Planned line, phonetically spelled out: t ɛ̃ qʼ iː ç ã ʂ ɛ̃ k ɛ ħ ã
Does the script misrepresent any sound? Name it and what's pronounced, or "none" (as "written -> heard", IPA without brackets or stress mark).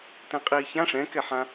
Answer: none